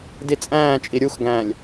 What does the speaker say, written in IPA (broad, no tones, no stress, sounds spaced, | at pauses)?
d i t͡sʼ æ̃ː t͡ʃʼ i ɾʲ u x ɡ æ̃ː lʲ